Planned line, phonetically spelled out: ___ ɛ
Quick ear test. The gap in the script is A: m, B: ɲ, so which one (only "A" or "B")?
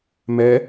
A